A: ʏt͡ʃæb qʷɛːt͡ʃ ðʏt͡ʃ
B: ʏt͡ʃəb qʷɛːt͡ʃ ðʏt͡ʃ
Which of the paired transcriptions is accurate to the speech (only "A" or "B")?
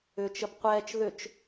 B